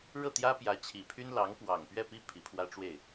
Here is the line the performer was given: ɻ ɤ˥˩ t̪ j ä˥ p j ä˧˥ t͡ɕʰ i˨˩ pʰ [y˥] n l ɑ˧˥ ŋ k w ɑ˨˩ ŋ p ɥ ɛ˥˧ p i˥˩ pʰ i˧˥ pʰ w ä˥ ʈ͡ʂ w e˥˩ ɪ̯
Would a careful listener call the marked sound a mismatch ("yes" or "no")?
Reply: no